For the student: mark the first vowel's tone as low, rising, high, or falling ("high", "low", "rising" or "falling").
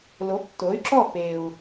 rising